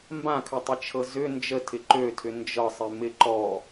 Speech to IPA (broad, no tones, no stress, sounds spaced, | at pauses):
m b ã kʰ ʏ tˤ ɪ t͡ʃʰ ɤ z ʏ n d͡ʒ ə tʰ ɪ ǃ ø tʰ ʏ n d͡ʒ ɤ sˤ ɪ m ɪ ǃ ɔ